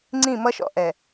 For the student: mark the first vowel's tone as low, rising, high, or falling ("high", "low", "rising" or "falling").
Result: falling